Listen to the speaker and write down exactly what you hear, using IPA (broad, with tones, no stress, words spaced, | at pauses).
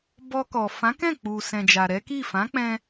bɔ˧kɔ˨ fã˨˦kɛ̃˦˨ k͡pu˨sɛ̃˨d͡ʒa˨ ɾɛ˨˦ki˦˨ fã˨˦k͡pɛ̃˧